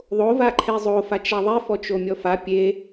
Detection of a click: present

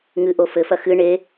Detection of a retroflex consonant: present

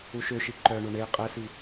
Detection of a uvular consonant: present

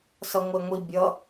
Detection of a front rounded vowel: absent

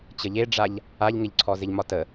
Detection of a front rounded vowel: absent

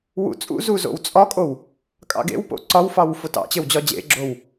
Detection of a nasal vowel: absent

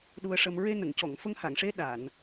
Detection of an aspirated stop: absent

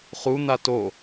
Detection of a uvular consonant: present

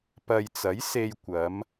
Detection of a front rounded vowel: absent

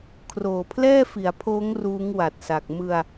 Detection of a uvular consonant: absent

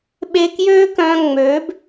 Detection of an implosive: present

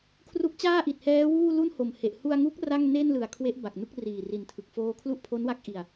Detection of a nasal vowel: absent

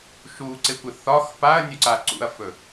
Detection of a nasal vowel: absent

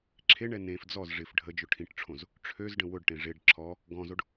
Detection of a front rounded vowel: present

